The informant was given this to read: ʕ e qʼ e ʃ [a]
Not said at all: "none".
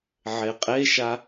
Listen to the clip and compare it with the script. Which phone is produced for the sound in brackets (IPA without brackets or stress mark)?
a